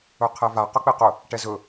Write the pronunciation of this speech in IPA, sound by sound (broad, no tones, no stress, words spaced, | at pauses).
ɵqʰɛva qɵk͡peqɵ | ʈɛzɵ